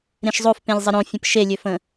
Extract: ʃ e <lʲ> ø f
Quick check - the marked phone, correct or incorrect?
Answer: correct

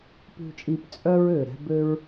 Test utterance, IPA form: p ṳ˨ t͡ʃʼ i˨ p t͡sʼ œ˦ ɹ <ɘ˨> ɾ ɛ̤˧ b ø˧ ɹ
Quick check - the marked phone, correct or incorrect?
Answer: incorrect: ø˨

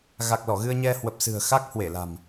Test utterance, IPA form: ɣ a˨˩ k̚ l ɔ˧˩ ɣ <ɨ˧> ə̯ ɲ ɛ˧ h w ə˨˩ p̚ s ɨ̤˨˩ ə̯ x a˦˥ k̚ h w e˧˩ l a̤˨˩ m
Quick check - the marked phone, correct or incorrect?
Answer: correct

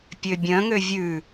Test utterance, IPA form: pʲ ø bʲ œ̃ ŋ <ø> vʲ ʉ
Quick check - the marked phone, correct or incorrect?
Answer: correct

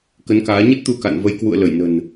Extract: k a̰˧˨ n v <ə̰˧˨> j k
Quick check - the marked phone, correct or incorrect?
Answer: incorrect: ə˧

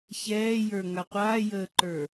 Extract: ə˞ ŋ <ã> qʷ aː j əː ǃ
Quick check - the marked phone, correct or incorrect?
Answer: incorrect: a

